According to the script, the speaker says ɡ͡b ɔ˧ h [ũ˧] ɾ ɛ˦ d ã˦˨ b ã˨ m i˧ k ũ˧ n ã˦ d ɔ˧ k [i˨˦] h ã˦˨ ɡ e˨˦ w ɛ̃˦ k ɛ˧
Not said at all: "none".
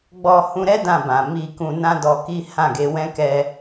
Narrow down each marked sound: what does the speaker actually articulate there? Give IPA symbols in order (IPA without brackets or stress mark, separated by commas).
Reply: ũ˧, i˦